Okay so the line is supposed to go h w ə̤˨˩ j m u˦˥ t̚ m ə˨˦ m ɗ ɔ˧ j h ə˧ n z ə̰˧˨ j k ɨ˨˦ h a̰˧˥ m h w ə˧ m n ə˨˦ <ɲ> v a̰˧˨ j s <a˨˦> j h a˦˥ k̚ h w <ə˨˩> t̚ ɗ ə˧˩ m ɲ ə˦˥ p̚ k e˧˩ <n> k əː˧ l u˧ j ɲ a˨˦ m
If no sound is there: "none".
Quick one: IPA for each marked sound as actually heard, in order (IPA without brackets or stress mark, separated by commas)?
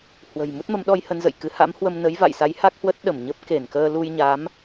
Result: j, a˨˦, ə˦˥, n